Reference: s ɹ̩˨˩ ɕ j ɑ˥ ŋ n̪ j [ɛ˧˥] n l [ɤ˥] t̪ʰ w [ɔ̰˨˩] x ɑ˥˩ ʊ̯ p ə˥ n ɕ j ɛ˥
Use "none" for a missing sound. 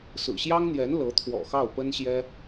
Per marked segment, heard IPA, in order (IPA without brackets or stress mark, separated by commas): ɛ˧˥, ɤ˧˥, ɔ̰˨˩